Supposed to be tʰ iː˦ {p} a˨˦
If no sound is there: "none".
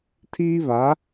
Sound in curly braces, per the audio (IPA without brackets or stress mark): β